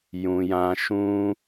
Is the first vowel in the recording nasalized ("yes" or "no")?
yes